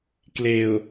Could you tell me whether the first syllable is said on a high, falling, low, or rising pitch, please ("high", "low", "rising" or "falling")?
low